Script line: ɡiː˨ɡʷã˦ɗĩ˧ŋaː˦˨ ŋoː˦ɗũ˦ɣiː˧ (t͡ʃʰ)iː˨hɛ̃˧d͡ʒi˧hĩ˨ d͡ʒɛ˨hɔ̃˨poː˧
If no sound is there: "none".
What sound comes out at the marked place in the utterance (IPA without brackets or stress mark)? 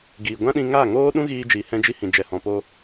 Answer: d͡ʒ